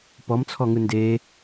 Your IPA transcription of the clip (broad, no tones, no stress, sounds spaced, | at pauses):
p ɔ m t͡sʰ ɔ ŋ ɯ n d e